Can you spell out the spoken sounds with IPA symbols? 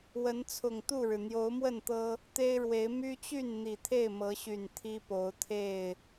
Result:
w ə˨˦ n t͡sʰ ʊ˨˩ ŋ t̪ u˥˨ ɻ ɻ̩˩ n̪ j o˨˦ ʊ̯ m w ə˥˨ n t̪ ɤ˦ | t̪ e˦ ɪ̯ ɻ w e˨˦ ɪ̯ m y˦ t͡ɕ y˥˨ n n̪ i˨˩ t̪ʰ e˥˨ ɪ̯ m ɤ˨˦ ɕ y˨˩ n t̪ʰ i˦ p o˨˦ ʊ̯ t̪ʰ e˥˨ ɪ̯

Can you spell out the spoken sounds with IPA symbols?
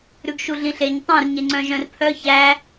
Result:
ɾ ʉ ɡ ʃ u ɮ ĩ ɬ e ɲ tˤ œ̃ r ɲ e ŋ͡ǀ œ̃ ʒ œ̃ r pʰ œ ç æ

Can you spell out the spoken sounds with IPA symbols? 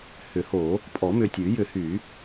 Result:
h ʏ˨˩˦ h o˨˩˦ | pʼ ɔ˨˩˦ m ʏ˨ tʲ ʉ˨˩˦ j ʏ˨˩˦ h y˨˩˦

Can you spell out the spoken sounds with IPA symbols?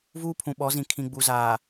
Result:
v uː˦ pʰ ũ˨ ɓ ɔ˨˦ z ĩ˨ kʰ ĩ˨ ɡ͡b u˨ z aː˨

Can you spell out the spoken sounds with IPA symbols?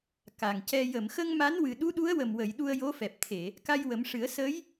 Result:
k a˨˩ ŋ c ɛ˧ j ə˨˩˨ m x ə˧ ŋ m a˧˥ n w ɨ˨˩ ɗ u˧˥ ɗ u˧˥ ə̯ w ə˨˩ m w ə˨˩˨ j ɗ u˧ ə̯ j o˧˥ f ɛ˨˩ p̚ t̪ʰ e˨˩˨ | k a˧ j w ə˨˩˦ m ʂ ɨ˨˩˦ ə̯ s ə˧˥ j

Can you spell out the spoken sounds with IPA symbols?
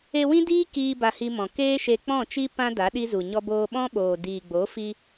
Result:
e˧ w ĩ˦ d iː˦ k iː˧ b a˧ h i˧ m ɔ̃˨ k eː˦ ʃ e˧ k͡p ɔ̃˦˨ t͡ʃ i˦ p ã˦ d a˨˦ ɗ i˦ z u˨ ɲ ɔ˦ b oː˧ ɓ ɔ̃˦ ɓ oː˨ d iː˨ ɡ͡b o˨˦ f i˧

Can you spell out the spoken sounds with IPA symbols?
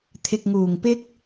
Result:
t̪ʰ ɪ˨ k̚ ŋ uː˨˩ ŋ p ɪ˥ k̚

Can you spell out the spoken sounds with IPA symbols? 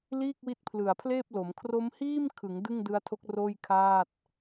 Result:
l iː˥˩ k̚ w i˦˥ t̚ pʰ l ɯ˨˩ a̯ pʰ l eː˥˩ p̚ l o˩˦ m kʰ r o˦˥ m h iː˥˩ m kʰ ɯ˩˦ ŋ d ɯ˥˩ ŋ d ɯ˦˥ a̯ tʰ o˦˥ k̚ r oː˥˩ j kʰ aː˥˩ t̚

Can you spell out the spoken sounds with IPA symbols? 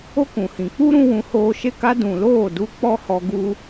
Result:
o˦ k ũ˨ h ĩ˨ k͡p u˦ ɾ ũ˦ w ũ˧ h oː˧ ʃ e˦˨ k a˦ d ũ˨ l oː˦˨ d u˧ k͡p ɔ˦ h ɔ˧ ɡ u˦

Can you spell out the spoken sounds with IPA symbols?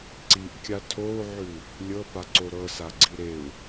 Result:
ǀ i ʔ kʲ a tʰ o u̯ ʕ ʉ | lʲ ɤ p a ǀ o ɾ ɤ s a ɡ͡ǀ i ɾ e u̯

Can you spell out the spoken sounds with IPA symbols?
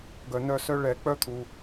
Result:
ɡ œ˩ n œ˦˨ s œ˦ ɭ ɛ˨˩˦ k͡p œ˦ t̪ʰ u˩

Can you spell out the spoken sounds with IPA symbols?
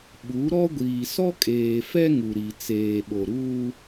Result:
ɓ u˨˦ ɾ ɔ˦ ɡʷ iː˨ s ɔ˦ kʼ eː˨ f ɛ˦ ŋ u˨ ɾ i˨ t͡s eː˨ ɓ o˨ ɾ uː˦

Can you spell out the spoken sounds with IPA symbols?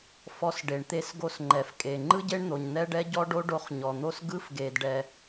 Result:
f ɔ˧ s ɖ e˩ ɳ t̪ e˧ s ɡ o˧ s ŋ͡ǃ ɛ˩ f kʼ e˩ ŋ͡ǃ ɯ˥ ɟ e˥ ɳ n̪ o˩ ɲ n̪ ɛ˥ ɖ ɛ˥ ɟ ɔ˥ ɖ o˥ ɖ o˧ χ ɲ ɔ˩ n̪ o˥ s ɡ ɯ˥ f ɡ e˩ d ɖ ɛ˩

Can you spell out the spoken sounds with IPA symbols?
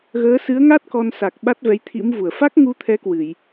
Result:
ɣ əː˨˦ s ɨ˨˦ ə̯ ŋ a˦˥ t̚ k ɔ˧ n s a˨˩ k̚ ɓ a˦˥ t̚ v ɛ˨˦ j t̪ʰ ḭ˧˥ m v u˧˩ ə̯ f a˦˥ k̚ ŋ u˧ t̪ʰ ɛ˨˦ k w ɨ˧˩˨ j

